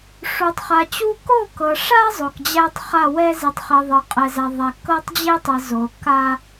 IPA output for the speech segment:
ʂ u˨ tˤ χ a˨ t͡ɕ u˦ k o˦˨ k ɤ˨ ʂ a˦ zˤ o˨ k d͡ʑ æ˦ tˤ χ a˦˨ w ɛ˦ z i˨ tˤ χ i˨ ðˤ ɤ˨ qʼ ɛ˨ z æ˨ ðˤ æ˨ k ɤ˦ tˤ d͡ʑ e˦ tˤ ɘ˨ z o˨ k a˦

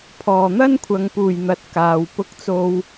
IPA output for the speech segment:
pʰ ɔː˨˩ n̪ ɐ˥ n kʷʰ ɐ˨ ŋ p uː˨˩ j n̪ ɐ˨ t̚ k aː˨ w p ʊ˧ k̚ t͡s o˧ w

